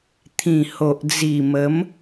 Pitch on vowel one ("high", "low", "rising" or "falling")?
low